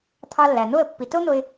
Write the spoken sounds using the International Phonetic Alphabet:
t̪ʰ ɑ˧ lː æ˩ n̪ o˥˩ ə̯ pː i˩ t o˥ n̪ o˧ ɪ̯

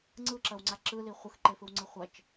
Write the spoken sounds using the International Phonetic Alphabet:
ŋ͡ǀ ɯ ǁ ɐ w ŋ͡ǀ a ǁ ɯ l i χʷ ɯ x ǃ e f ɯ w ŋ͡ǀ ɯ χʷ ɐ t͡ʃ

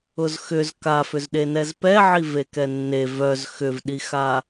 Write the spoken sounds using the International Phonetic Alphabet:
ʊ z x ʏ z k a f ʏ z ɗ e n ɛ z p ɛ ʕ i v e k ɛ nː e v œ z x ʏ v ɗ i x a

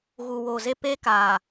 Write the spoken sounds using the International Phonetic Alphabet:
ɣ u˨ w oː˨ z e˦ p e˦ k aː˨

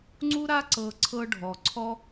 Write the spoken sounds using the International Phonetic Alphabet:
ŋ͡ǀ u˦ ɾ a˦ ǀ ɤ˧ ǀʰ ɤ˦ ɖʱ ɔ˨ ǀʰ ɔ˦

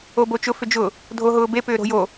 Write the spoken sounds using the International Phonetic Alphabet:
o b o t͡ʃ ʊ f ʏ d͡ʒ ʊ | dʱ o ɦ ʊː b e p ʏː ɾ o̤ j o

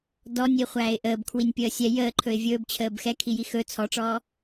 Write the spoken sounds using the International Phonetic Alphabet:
d ɔ nʲ i χʷ æː ɪ̯ ʔ əː b kʰ w i nʲ pʲ əː sʲ ɛ j əː ǃʰ ɵ ɪ̯ vʲ ɵː b t͡ɕʰ əː b x ɛ kʰ i j i x ɵ t͡sʰ ɔ ʈ͡ʂ ɔː

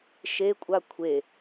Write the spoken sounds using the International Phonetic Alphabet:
ʃ e kʷʼ a kʷʰ e

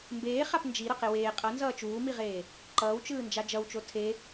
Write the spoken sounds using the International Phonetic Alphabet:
m b eː χ a p n d͡ʒ i ɾ ʌ q e w eː qʼ ʌ n z ʌː t͡ʃ uː m i ʁ eː | ǃ ʌː w t͡ʃ ɯː n d͡ʒ a d͡ʒ ʌ w t͡ʃ o tʰ e

